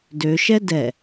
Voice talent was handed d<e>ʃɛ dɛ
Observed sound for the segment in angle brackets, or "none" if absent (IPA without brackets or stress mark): ø